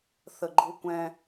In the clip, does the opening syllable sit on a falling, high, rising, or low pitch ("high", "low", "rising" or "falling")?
low